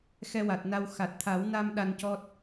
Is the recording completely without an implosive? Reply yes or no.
no